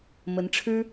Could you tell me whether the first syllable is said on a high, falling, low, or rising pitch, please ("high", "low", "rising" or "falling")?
rising